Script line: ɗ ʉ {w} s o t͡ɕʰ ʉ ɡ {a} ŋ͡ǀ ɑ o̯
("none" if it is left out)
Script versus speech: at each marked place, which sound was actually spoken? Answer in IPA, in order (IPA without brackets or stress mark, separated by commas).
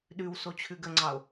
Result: w, ə